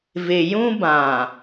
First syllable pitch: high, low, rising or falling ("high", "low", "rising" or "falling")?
low